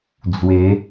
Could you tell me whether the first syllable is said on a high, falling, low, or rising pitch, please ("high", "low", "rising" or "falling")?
rising